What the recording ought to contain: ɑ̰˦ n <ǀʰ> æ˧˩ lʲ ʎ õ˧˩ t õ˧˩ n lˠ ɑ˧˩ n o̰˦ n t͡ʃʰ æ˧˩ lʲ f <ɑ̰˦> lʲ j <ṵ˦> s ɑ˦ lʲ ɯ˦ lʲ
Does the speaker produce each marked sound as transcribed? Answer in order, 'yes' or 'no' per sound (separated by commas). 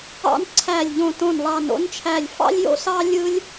yes, yes, no